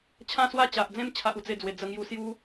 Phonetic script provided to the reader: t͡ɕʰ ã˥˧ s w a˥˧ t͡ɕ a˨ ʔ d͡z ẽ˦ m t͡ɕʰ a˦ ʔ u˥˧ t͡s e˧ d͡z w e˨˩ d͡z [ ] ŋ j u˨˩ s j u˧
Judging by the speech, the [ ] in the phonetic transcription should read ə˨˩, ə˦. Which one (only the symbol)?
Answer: ə˨˩